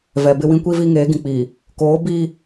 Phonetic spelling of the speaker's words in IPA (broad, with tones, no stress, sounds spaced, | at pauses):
v ɛ˨ b ɪ˦ w ĩ˦ kʷ i˦ v i˦ ŋ eː˨˦ ɡ ĩ˨ k͡p iː˨ | k oː˨˦ b iː˦